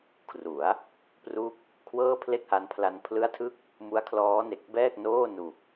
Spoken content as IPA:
kʰ r u˩˦ a̯ | p r u˦˥ k̚ | kʰ w ɤː˥˩ pʰ l e˥˩ k̚ h a˦˥ n pʰ l a˧ n pʰ l ɯ˦˥ a̯ tʰ ɯ˦˥ k̚ | m u˦˥ a̯ kʰ l ɔː˦˥ n e˨˩ k̚ b ɛː˥˩ k̚ n oː˥˩ n u˨˩ k̚

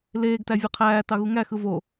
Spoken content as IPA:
l eː ɡ t æ vʲ ɯ qʰ æː t ɑ ɣ u ŋ æ x ɯ v o

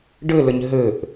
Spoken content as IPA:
ɖ ɘ l ə ɲ ɦ ɘ ʔ

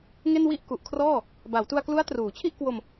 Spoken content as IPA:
ŋ e˥˩ n w i˥˩ ʔ k u˨˩ ʔ kʰ r ɔː˥˩ | b a˩˦ w t u˧ a̯ k l u˦˥ a̯ t r uː˩˦ t͡ɕʰ i˥˩ ʔ k w o˧ m

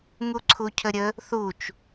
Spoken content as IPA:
ŋ u ǀʰ u cʰ ə ɾʲ ə | θ u t͡ʃ

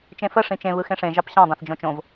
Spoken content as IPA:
t͡ʃ ẽ f ə ʂ ĩ t͡ʃ ẽ β ɯ x ẽ ʂ ẽ ʒ ɑ p ɕ ɑ̃ dˤ ẽ θ d͡ʒ õ t͡ʃ õ v

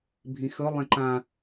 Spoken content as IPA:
bʱ ĩ x ɵ lˠ ɛ̃ ǃ ã

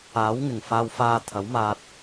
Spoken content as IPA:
aː˨˥ w ŋ ɪ˨˩ ŋ f aː˧ w f aː˧ t̪ʰ ɐ˨˥ w m aː˧ t̚

